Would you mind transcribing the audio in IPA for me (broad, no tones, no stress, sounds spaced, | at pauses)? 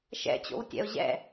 ʃ ɛ̰ t͡ɕ o̰ w tʲ ɛ̰ o̯ ʑ ɛ̰